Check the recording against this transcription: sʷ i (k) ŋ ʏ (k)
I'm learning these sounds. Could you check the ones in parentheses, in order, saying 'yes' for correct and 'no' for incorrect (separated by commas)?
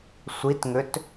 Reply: no, no